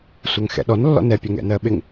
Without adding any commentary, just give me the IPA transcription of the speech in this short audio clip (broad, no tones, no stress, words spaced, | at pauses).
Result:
sʷɜŋxɛ̰ɗɔn lːɔ̰nɛ pʲɛŋɛ̰nɜɓɪŋ